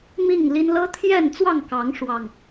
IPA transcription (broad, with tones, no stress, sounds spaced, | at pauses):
m i˥˨ ŋ l i˦ n l ɤ˦ t̪ʰ j ɛ˥˨ n t͡s w ɑ˥˨ ŋ k ɑ˨˦ ŋ ʂ w ɑ˥˨ ŋ